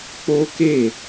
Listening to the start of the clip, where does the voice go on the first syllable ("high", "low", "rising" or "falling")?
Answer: high